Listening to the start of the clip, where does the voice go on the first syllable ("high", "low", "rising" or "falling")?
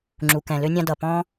low